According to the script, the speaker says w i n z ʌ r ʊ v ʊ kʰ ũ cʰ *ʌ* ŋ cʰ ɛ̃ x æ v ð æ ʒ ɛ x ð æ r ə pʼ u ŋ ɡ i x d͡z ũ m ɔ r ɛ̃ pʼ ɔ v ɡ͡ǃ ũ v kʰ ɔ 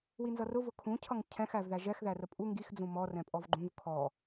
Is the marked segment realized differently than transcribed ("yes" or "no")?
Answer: no